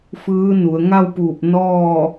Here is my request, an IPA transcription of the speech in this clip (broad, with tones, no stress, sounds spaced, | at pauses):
f ɯː˧˥ n u˩˧ ə̯ ŋ a˥˨ w p uː˧˩ p̚ n ɔː˥˨